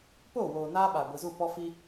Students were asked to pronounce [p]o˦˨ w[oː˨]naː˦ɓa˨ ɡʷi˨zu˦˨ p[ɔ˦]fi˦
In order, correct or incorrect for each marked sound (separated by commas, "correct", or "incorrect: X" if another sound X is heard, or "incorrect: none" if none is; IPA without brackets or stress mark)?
correct, correct, correct